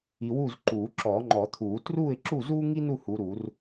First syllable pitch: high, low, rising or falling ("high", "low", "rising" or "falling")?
low